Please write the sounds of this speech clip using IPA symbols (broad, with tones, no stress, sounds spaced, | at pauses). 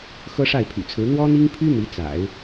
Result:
x ɤ˥ ʂ a˥˩ ɪ̯ pʰ y̰˨˩ t͡sʰ ɹ̩˧˥ n̪ w ɔ˥ n̪ i˥ ŋ pʰ y˥ n̪ i˧˥ t͡s a̰˨˩˦ ɪ̯